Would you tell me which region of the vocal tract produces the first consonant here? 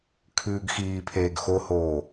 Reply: velum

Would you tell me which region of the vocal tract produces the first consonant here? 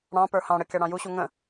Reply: retroflex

